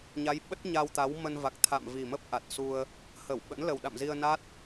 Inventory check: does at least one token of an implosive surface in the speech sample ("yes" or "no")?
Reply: yes